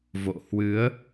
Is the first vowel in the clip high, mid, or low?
mid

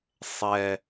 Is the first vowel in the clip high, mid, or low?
mid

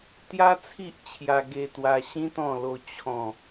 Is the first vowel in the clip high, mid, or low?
low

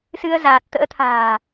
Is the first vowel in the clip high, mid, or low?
high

